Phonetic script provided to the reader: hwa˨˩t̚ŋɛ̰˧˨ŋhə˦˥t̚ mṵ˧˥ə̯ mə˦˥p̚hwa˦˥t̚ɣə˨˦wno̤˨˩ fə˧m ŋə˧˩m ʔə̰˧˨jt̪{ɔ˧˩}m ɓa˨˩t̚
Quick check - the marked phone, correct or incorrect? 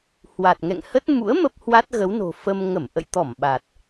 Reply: correct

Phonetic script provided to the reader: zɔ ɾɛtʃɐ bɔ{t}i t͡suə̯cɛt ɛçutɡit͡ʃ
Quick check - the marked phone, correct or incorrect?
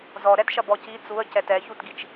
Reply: incorrect: c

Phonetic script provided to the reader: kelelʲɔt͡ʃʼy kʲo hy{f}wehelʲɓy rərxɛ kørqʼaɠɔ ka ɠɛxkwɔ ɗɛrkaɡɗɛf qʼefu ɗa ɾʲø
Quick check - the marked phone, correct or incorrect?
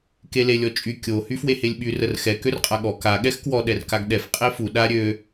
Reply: correct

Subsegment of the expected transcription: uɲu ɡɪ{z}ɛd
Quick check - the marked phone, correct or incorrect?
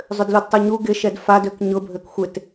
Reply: incorrect: ʃ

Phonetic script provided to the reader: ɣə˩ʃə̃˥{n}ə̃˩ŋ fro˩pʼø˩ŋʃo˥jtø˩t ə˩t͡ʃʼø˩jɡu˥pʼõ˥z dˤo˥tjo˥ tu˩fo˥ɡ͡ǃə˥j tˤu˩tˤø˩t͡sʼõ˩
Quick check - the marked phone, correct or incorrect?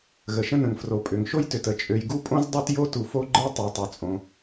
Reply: correct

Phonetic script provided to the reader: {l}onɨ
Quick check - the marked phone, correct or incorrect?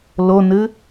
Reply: correct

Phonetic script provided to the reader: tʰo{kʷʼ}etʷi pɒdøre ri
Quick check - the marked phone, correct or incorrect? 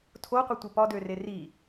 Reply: incorrect: qʷ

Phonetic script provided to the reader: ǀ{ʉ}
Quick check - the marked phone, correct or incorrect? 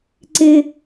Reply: incorrect: ɘ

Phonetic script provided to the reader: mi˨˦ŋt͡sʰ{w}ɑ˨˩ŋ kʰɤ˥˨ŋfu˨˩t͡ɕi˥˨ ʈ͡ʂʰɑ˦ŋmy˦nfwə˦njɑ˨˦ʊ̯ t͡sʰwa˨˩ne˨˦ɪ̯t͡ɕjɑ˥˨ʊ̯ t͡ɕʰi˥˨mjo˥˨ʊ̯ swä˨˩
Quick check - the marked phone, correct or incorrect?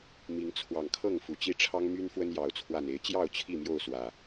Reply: correct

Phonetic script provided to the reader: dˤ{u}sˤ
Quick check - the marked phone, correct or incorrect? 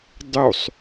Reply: correct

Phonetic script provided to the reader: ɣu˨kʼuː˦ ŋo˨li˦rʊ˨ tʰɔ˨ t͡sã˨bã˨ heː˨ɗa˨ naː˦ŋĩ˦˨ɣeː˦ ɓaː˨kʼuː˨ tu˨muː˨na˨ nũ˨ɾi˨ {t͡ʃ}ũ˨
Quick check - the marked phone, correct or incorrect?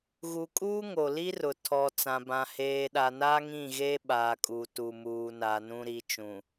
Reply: correct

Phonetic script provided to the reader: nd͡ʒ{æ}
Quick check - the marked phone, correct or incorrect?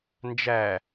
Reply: correct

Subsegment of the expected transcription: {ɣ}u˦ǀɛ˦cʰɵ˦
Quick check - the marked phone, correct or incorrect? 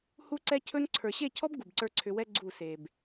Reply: incorrect: h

